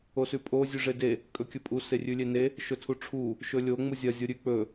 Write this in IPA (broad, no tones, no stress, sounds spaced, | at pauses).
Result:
o s ʉ pʼ o zʲ ʉ ʐ e d e | kʼ ɵ kʲ ɵ pʼ u s e rʲ ʉ lʲ e n e | ʃ ɵ tʰ u ʈ͡ʂʰ u | ʃ ɵ lʲ o ŋ͡m u zʲ ɐ zʲ o ɾʲ ʉ k͡p ɵ